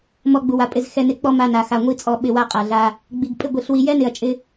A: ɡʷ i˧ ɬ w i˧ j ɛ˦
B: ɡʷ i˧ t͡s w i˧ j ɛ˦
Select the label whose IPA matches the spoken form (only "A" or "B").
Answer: A